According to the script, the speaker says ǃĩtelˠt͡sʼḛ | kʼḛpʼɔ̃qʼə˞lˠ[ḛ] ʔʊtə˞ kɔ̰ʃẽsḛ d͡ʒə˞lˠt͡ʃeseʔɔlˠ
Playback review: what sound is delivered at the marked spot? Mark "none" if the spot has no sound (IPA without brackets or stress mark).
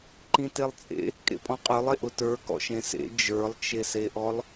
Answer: e